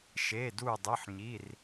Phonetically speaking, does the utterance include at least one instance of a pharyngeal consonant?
yes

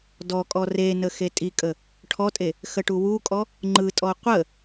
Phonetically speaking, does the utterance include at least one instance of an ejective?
yes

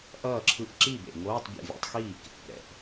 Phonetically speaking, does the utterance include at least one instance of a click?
yes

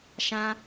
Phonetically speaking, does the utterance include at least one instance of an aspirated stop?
no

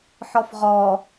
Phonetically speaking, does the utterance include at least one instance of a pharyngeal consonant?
yes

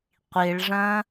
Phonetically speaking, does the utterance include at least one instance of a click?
no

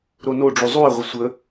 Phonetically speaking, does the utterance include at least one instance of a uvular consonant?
yes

